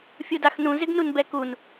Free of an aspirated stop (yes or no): yes